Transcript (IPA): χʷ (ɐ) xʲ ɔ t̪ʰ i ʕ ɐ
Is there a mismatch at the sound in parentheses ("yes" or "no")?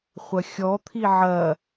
no